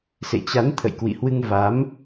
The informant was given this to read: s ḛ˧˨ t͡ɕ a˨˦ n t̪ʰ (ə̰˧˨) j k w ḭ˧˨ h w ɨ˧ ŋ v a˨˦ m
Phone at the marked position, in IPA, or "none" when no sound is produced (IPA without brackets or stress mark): ə̰˧˨